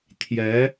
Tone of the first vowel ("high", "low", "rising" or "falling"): rising